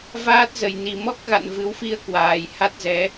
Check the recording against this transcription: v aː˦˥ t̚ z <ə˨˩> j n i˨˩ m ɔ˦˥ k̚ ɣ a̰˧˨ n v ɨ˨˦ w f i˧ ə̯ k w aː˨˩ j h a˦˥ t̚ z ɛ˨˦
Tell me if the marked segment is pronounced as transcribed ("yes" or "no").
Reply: yes